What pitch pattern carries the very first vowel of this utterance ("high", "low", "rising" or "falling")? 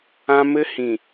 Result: high